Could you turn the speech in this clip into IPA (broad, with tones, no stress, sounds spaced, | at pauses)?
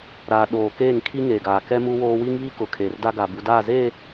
ɾ aː˨ ɗ oː˨ k eː˦˨ ŋ kʰ i˦ ŋ eː˨ ɡ aː˨ k ɛ˦ m u˦ w oː˦ w i˦ ŋ β i˦ k ʊ˨ kʰ e˨ r d a˦ ɡ a˨ b u˨ d aː˦˨ z eː˦˨